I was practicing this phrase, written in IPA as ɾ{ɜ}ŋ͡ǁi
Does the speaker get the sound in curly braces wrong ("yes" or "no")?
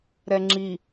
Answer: yes